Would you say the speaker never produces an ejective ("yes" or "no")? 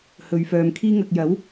yes